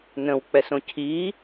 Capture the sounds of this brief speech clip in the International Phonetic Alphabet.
n ə̃ w k͡p ɛ s õ cʰ i

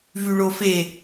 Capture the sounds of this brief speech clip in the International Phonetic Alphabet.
v y ɭ o f e

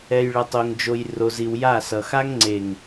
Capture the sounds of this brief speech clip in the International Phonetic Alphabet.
ɛ˨ j ɭ ʌ˨ tˤ o˨ ŋ d͡ʒ o˨ j r o˨ z i˨ w j a˦˨ s ʌ˨ x a˦ ŋ ŋ͡ǀ e˨ ŋ

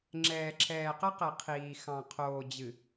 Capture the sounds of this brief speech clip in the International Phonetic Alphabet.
ŋ͡ǁ ɛː˨ ǁʰ ɛː˨ q ə˦ q ɛ˨ qʰ iː˨ x ɑ̃˨ qʰ oː˨ d͡ʑ ɨ˨

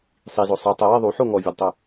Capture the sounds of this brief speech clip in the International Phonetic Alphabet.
sˤ i z o sˤ i tˤ ɛ w e ðˤ u ħ o ŋ ɔ vʲ ɔ d tˤ ʊ

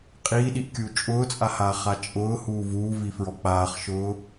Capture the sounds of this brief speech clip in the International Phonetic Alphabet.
qʼ iː ɗ i ʔ kʲ uː t͡ʃʼ ʊː t͡sʼ a h aː χ a t͡ʃʼ ʊː h uː v uː v i f ɹ ɔ k͡p aː χ ʃ ʊː

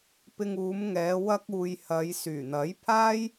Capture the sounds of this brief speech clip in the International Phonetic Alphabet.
p ɪ˧ ŋ uː˨˧ m ŋ ɛː˨˧ w ɐ˥ k̚ uː˧ j h ɐ˨˧ j s yː˨˩ n̪ ɐ˨˥ j pʰ aː˥ j

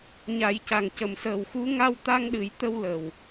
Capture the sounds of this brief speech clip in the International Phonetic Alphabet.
ɲ a˨˩˦ j c a˨˩ ŋ c ə˨˩˨ m s əː˨˩ w x u˧˥ ŋ a˧ w t̪ a˧ ŋ ɗ ɨ˨˩˦ j t̪ ə˧ w l ə˨˩ w

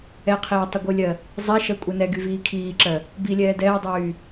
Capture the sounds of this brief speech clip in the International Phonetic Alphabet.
ɛ qʰ eː tˤ ə ɡʷ ɨ lʲ ɜ | zˤ ɛ ʃ ɜ kʷʼ e n ɛ ɡ y v iː kʰ iː ǁ ɜ | b i lʲ ɛː d ɛː dˤ yː

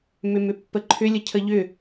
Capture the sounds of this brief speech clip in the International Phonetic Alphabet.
m ʏ m ʏ pː ə ǃʰ ʏ lʲ ə cʰ ə ʎ ʏ

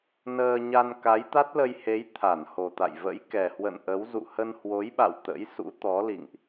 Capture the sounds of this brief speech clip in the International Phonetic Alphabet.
n əː˧ ɲ a˧ n k a˨˦ j t̪ a˦˥ t̚ l ə˧ j h e˨˦ j t̪ʰ a˧˩ n h o˨˩ t̪ a̰˧˨ j v ə̰˧˥ j k ɛ˨˩ h w ə̰˧˨ n ʔ ə˨˦ w z ṵ˧˨ h ə˧ n h w o˨˦ j ɓ a̰˧˨ w t̪ ə̰˧˥ j s ṵ˧˥ t̪ ɔ˨˦ l ḭ˧˨ ŋ ʔ

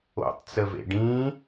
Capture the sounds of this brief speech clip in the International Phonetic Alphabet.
o̰ tˤ t͡s ə v ḛ ɖ ĩ

